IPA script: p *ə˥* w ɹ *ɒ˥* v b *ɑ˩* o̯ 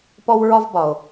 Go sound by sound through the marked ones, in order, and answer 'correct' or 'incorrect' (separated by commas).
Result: incorrect, correct, incorrect